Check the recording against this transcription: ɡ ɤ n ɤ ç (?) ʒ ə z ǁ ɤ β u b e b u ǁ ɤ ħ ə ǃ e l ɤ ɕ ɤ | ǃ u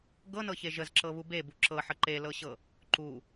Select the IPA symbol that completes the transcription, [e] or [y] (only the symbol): e